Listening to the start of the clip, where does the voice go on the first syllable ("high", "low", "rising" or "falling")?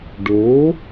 rising